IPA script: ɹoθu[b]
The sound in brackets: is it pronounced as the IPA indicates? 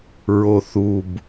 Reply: yes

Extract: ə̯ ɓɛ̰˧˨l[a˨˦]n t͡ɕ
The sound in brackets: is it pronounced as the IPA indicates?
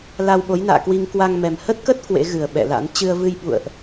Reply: no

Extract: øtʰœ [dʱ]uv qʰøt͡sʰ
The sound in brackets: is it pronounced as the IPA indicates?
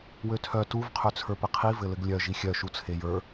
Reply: no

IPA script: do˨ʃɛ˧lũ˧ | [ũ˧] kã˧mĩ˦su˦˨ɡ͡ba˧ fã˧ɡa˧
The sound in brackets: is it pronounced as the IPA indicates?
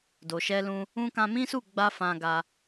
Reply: no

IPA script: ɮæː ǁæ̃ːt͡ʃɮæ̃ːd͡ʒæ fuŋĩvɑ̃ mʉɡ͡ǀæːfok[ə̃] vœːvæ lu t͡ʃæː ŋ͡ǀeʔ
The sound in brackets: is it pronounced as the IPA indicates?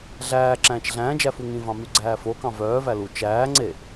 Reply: no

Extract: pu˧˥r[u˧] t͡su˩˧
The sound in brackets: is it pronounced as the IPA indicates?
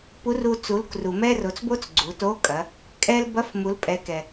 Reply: yes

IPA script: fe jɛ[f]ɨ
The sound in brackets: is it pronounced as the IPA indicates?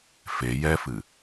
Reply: yes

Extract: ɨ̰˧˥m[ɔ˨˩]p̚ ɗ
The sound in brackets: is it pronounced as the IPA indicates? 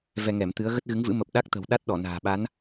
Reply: no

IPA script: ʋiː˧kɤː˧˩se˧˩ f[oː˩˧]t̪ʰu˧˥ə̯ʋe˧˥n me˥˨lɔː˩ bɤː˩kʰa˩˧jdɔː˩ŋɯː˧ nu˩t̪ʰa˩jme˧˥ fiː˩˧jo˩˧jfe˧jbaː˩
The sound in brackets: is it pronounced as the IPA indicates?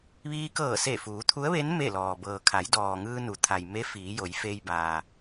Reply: no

